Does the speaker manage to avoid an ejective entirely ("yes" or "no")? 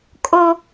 no